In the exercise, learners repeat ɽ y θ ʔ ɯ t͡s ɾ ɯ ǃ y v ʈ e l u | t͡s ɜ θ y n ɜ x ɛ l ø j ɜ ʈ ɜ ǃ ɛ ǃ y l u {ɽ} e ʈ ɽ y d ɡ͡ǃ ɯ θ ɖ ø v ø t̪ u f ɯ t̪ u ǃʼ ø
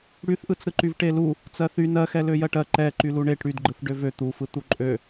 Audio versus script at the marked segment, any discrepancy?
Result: yes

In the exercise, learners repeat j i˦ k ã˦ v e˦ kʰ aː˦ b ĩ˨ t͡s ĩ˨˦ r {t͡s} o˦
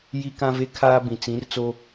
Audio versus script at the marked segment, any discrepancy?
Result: no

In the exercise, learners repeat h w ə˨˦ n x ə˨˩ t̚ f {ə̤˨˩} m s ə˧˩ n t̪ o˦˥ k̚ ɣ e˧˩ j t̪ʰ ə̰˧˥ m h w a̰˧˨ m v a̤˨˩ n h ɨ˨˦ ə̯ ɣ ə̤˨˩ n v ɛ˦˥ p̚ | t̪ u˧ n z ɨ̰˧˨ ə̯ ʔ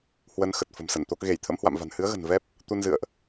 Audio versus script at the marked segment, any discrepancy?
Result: no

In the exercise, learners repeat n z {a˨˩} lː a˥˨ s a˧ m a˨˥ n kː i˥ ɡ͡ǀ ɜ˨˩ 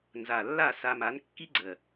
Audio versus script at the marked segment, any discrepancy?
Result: no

